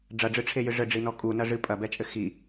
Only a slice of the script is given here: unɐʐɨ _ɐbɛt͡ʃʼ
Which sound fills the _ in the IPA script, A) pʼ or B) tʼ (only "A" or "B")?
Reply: A